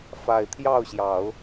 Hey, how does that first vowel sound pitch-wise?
low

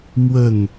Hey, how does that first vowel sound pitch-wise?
falling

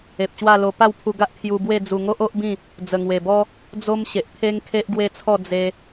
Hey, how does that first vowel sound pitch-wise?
low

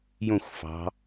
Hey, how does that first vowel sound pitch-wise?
falling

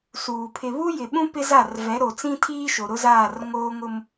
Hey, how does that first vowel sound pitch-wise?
low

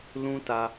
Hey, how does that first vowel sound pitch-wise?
high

